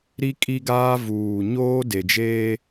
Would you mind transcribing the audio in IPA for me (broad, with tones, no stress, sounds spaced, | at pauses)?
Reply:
ɾ i˦ kʼ i˦ ɡ aː˦ v uː˨ ɲ oː˦ d e˨ d͡ʒ eː˦